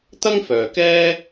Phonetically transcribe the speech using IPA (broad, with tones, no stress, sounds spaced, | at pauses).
t̪ ɐ˥ ŋ f œː˨ k ɛː˥